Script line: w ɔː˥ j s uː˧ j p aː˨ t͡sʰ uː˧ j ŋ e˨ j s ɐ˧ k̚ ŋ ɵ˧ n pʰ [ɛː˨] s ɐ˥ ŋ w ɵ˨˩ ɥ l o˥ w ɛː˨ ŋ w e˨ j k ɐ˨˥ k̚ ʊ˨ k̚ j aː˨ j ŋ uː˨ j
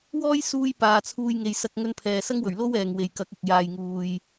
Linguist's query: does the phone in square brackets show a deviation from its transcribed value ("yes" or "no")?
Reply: no